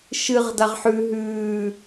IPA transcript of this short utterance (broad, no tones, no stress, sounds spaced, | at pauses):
ʃ ɨ ʁ d a ʁ ħ ʉ ɦ ʉː